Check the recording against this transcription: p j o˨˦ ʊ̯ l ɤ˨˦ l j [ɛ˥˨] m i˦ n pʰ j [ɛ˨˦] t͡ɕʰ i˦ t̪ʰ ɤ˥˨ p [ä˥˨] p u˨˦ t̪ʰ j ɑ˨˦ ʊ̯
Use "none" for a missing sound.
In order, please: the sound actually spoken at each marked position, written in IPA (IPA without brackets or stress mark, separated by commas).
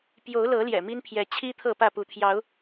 ɛ̰˨˩, ɛ˨˦, ä˥˨